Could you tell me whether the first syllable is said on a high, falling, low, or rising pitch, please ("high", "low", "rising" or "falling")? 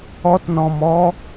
high